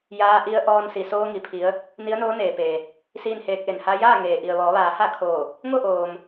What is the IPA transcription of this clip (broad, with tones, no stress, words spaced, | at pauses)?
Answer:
jaː˧ʔi˧ə̯ ʔɔː˧nsi˩soː˧ŋi˩ pʰi˧˥ə̯ | ni˧˥ə̯noː˧˥neː˩peː˩ | siː˥˨nheː˧˥k̚ʔe˩n ha˧jaː˥˨ ŋeː˩ ʔi˩ə̯ʋɔː˩˧ʋaː˩˧ha˥˨ kʰoː˧˩ | ŋo˥˨ʔoː˩m